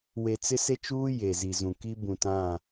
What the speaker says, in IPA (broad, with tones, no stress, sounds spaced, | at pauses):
w e˨ t͡s ɪ˦ s e˦ t͡ʃ uː˦ j e˨ z i˨ z ũ˨ k i˦ b ũ˨ t ã˦˨